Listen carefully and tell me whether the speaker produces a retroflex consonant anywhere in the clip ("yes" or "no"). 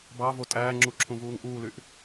no